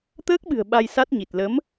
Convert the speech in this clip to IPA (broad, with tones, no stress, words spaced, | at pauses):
t̪əː˦˥k̚ɓɨ̤˨˩ə̯ ɓa˧jsa˦˥t̚ɲi˨˩t̚ lə˨˦m